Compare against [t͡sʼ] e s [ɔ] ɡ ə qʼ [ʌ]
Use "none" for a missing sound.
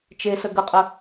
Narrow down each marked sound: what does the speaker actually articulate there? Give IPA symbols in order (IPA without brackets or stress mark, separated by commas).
t͡ʃ, ə, ə